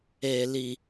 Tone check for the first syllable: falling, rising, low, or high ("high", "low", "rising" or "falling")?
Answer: low